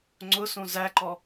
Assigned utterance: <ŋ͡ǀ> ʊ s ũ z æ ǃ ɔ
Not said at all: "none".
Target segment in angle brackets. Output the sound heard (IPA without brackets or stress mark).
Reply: ŋ͡ǀ